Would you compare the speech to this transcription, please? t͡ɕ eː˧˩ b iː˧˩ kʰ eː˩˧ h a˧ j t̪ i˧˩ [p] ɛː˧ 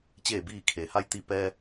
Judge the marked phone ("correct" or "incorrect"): correct